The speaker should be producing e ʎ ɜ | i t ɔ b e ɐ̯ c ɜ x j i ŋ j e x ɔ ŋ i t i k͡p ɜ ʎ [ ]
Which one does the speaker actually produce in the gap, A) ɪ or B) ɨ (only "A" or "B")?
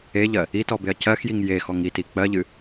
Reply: B